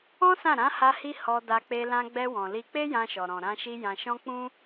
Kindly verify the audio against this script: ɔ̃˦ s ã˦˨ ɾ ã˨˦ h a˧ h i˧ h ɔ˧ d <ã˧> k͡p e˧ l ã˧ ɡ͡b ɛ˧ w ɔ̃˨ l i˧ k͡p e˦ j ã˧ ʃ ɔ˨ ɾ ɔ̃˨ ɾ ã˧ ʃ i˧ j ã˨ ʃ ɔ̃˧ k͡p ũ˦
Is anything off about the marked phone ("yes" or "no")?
yes